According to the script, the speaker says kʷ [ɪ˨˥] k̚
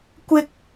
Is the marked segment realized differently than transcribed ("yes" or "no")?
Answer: yes